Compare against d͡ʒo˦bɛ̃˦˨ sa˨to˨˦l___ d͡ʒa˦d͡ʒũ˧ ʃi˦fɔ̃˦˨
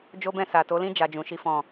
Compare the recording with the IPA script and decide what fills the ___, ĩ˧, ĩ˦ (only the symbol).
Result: ĩ˦